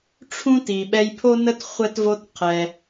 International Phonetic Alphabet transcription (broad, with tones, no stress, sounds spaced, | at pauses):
ʈ͡ʂʰ ũ˥ t i˩ ɓ ɛ˧ j pʰ o˥ n ə˥ t χʷ ɛ˧ t v o˧ t qʰ ɛ˩